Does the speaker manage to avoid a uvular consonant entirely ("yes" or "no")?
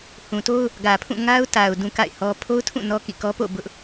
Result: yes